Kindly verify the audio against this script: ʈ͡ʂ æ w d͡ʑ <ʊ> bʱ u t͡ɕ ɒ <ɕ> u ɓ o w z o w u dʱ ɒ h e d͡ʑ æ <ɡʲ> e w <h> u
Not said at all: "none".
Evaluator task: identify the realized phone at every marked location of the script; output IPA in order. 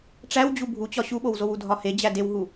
u, ɕ, d, ɦ

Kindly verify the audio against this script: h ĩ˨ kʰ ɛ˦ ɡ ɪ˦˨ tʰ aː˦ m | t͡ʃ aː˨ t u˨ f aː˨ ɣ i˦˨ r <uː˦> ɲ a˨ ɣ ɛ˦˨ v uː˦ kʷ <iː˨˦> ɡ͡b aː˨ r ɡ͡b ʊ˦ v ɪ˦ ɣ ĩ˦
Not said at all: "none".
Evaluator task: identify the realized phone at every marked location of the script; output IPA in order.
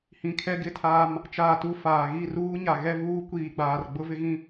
uː˦, iː˨

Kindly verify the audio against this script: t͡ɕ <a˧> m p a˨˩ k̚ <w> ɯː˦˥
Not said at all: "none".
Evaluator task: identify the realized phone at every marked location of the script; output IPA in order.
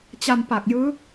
a˧, j

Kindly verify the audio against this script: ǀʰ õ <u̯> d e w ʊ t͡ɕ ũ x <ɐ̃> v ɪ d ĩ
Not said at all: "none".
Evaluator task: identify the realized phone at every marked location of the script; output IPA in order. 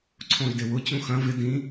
y̯, ɐ̃

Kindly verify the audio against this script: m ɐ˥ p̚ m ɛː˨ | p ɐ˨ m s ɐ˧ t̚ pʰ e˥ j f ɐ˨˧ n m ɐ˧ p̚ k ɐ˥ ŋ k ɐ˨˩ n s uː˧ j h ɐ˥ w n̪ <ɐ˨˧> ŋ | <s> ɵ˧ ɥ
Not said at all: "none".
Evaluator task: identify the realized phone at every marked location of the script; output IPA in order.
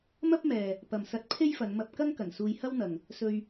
ɐ˨, s

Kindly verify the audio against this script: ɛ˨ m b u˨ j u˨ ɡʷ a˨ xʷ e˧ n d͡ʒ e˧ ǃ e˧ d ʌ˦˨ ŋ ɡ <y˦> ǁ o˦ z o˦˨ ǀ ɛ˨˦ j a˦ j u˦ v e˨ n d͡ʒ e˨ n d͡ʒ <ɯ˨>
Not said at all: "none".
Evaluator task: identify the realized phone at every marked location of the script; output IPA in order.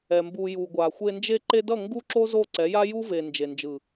u˦, ɯ˨

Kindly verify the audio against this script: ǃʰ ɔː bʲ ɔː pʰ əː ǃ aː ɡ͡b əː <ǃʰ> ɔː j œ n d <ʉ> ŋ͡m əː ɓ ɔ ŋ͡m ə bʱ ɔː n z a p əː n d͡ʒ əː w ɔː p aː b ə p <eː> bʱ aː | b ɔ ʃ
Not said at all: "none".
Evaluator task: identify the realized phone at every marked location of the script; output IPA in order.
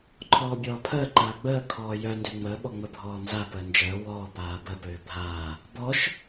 kʰ, ø, øː

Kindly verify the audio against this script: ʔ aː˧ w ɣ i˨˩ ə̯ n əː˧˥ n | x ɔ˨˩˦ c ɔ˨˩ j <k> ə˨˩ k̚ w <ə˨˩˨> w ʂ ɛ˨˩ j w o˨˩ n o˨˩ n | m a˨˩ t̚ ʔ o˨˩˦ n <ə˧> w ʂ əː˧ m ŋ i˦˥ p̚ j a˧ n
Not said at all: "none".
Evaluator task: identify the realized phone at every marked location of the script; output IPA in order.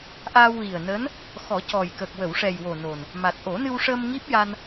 k, ə˨˩˨, ɨ˧

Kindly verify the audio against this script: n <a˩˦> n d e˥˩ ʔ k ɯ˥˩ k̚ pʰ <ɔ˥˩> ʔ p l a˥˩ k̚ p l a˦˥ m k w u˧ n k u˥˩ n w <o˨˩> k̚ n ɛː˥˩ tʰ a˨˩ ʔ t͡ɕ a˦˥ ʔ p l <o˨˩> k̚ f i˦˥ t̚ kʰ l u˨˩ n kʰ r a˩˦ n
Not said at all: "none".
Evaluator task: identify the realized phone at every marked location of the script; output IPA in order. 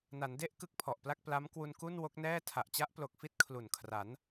a˩˦, ɔ˨˩, o˦˥, o˨˩

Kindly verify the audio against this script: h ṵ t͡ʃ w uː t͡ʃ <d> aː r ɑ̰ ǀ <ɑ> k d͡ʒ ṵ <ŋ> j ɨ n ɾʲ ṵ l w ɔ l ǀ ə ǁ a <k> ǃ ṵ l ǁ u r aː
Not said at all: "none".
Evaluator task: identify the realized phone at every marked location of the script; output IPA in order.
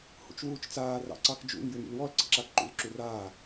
t͡s, ɑ, ŋ, k

